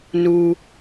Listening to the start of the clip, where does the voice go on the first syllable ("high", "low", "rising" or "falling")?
low